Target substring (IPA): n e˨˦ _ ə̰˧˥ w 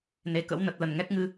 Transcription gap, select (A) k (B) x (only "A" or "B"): A